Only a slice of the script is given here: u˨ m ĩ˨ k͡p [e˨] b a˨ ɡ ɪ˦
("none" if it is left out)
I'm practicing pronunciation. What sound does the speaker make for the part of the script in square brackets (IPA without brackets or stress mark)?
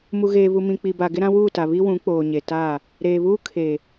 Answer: i˨